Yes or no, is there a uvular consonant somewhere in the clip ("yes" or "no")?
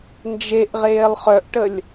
yes